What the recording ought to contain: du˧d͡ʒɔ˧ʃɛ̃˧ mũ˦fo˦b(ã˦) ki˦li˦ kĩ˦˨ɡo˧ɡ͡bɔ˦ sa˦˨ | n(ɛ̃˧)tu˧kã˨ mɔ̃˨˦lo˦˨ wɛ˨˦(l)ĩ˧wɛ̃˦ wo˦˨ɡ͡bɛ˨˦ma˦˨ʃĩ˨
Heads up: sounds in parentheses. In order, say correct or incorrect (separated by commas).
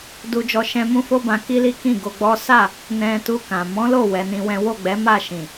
incorrect, correct, incorrect